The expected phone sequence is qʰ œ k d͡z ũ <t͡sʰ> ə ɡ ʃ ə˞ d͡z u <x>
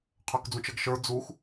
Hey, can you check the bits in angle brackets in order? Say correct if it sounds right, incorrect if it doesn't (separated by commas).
incorrect, correct